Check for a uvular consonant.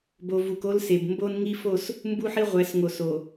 present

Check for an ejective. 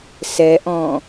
absent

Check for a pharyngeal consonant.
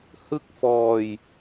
absent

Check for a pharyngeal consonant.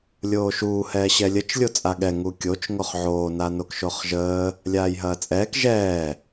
present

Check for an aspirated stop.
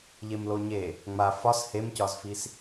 absent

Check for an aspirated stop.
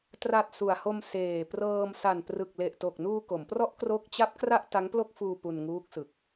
absent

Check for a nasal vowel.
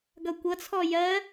absent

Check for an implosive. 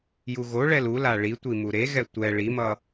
absent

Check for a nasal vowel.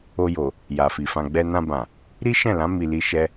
present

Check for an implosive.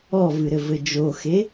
absent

